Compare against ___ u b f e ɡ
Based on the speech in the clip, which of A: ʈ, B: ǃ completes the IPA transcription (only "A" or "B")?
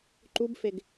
B